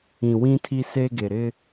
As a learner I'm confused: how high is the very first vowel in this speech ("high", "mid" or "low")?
high